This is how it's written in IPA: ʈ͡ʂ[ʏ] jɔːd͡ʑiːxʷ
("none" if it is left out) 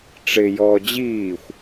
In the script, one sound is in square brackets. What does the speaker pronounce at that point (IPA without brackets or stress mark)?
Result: ɪ